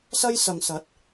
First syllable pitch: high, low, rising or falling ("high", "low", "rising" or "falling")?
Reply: high